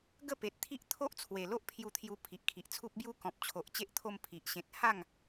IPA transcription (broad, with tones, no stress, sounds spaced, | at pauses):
ɡ ə˥˧ p e˨ t̚ t̪ʰ i˦ ʔ t̪ʰ o˦ ʔ t͡sʰ w e˨˩ l o˦ ʔ pʰ j u˧ t̪ʰ j u˧ pʰ i˨ ʔ kʰ i˨ ʔ t͡sʰ u˦ p̚ b j u˦ k ɔ̃˨ p̚ t͡ɕʰ o˨ ʔ t͡ɕ e˦ ʔ t̪ʰ o˧ m pʰ i˨ ʔ ɕ ẽ˨ t̚ h a˥˧ ŋ